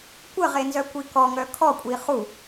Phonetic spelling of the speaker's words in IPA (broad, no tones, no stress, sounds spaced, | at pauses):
kʷ ə ʁ e n z œ kʷ i k ɔ ŋ œ kʰ ɔ kʷʼ i χ u